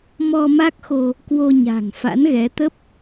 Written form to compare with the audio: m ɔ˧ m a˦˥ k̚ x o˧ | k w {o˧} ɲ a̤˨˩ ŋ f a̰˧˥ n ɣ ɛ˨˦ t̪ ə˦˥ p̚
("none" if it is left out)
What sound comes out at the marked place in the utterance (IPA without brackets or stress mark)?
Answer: o˧